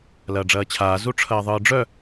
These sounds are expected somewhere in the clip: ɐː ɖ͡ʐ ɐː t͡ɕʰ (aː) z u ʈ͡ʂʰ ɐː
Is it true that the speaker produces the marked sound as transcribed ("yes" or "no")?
yes